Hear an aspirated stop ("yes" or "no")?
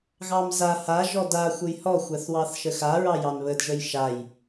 no